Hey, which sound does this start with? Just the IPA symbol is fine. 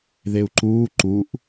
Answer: ð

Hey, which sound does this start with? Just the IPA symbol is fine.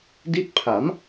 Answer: d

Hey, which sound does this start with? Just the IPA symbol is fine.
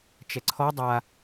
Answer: t͡ʃ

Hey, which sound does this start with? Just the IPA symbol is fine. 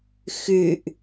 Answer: x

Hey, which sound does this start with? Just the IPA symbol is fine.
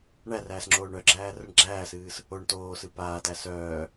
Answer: ɳ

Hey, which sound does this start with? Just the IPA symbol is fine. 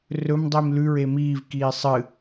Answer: r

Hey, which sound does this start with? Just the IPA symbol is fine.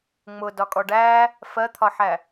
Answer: ŋ͡m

